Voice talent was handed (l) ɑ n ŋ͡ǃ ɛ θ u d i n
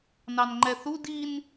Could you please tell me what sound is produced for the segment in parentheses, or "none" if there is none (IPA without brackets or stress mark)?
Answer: n